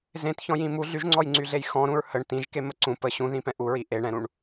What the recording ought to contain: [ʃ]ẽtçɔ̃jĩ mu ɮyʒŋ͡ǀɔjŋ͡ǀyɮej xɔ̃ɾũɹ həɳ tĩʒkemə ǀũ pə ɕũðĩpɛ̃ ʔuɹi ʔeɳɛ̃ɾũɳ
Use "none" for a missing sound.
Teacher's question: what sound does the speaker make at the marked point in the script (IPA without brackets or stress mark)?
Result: z